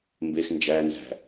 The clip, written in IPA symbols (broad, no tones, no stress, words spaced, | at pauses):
mbex nd͡ʒænzæ̤